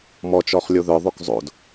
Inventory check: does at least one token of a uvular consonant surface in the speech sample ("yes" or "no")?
yes